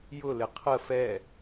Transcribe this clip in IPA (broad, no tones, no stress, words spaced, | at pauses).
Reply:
jʊlɪ qʰə fɛ